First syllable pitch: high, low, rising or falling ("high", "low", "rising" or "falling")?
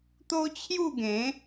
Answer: high